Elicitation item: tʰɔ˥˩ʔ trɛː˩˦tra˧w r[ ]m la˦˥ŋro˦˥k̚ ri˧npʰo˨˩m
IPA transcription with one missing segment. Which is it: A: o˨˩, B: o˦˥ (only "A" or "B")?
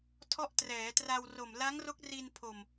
A